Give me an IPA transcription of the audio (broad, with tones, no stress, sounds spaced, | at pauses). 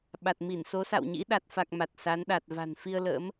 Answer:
ɓ a˨˩ t̚ m i˧˩ n s o˨˦ s a̰˧˨ w ɲ ḭ˧˥ ɗ a˨˩ t̚ f a˨˩ k̚ m a˨˩ t̚ s a˨˦ n ɗ a˨˩ t̚ v a̤˨˩ n f i˧ ə̯ l ə̰ː˧˥ m